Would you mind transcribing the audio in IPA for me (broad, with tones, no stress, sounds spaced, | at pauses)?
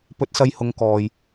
p ɵ˧ t̚ s ɐ˧ j h ʊ˨˧ ŋ k ɔː˨ j